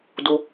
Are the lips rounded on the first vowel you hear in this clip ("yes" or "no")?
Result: yes